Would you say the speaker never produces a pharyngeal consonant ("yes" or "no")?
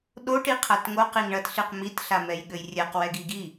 yes